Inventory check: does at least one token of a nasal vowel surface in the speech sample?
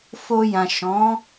yes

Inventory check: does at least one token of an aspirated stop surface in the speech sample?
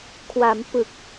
yes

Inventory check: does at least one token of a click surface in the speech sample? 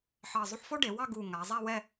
no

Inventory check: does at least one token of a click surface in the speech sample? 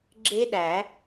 yes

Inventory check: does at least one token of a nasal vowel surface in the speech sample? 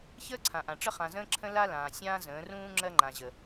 yes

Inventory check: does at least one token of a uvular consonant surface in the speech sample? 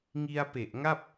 no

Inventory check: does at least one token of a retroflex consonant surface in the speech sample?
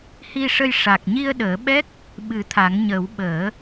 yes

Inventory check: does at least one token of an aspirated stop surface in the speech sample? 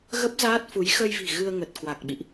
no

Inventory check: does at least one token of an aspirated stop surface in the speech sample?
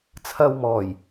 yes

